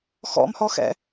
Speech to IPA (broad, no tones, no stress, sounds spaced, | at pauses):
x ɔ̰ m h ɔ x ɛ̰